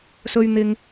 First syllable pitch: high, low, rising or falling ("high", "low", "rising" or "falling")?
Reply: high